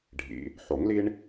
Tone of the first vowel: low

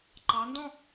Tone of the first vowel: rising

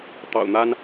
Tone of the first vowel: low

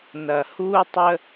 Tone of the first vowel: low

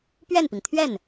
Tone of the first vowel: falling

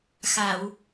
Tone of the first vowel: low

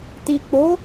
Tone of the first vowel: low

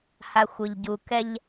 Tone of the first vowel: low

